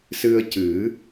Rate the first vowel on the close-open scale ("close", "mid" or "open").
close